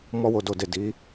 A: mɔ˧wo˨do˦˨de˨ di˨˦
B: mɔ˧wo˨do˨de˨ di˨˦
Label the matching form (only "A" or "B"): B